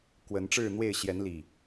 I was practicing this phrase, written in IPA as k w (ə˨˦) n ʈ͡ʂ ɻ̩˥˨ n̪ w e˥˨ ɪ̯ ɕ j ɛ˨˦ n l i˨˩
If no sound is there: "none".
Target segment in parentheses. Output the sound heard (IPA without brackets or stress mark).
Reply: ə˨˦